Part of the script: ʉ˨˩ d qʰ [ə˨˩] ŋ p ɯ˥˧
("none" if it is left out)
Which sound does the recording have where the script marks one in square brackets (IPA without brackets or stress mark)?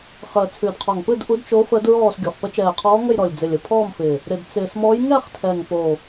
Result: ɔ˨˩